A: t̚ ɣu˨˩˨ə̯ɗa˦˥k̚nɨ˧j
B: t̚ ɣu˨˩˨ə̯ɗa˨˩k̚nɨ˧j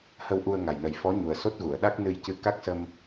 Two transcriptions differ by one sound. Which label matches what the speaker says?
A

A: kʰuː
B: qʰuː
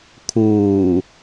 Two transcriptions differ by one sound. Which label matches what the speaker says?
A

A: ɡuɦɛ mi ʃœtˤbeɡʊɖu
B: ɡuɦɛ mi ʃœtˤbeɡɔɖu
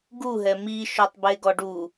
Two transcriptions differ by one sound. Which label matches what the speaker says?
B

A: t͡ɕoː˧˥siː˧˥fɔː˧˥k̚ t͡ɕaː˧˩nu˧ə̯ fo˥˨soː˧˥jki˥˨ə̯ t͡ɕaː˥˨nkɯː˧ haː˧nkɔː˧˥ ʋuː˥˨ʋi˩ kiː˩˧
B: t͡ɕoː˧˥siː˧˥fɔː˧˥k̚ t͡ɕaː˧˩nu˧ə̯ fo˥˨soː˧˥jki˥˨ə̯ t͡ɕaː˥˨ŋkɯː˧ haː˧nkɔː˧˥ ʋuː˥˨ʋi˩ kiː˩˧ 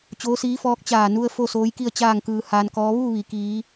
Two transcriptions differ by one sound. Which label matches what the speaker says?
B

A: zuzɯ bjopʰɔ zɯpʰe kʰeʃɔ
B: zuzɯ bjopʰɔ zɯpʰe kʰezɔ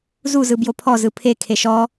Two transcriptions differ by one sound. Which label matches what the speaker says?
A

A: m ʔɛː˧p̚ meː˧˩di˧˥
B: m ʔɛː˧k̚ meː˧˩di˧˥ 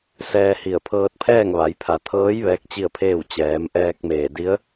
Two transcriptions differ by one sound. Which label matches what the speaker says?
B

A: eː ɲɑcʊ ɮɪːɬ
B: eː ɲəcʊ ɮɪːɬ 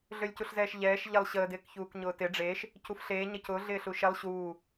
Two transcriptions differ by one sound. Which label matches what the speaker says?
B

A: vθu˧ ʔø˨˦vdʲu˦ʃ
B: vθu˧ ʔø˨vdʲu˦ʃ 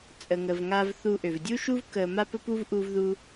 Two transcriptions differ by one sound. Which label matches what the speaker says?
B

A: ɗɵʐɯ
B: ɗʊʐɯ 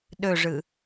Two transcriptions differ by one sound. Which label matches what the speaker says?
A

